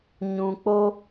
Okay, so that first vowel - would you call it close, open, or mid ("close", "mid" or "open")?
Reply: close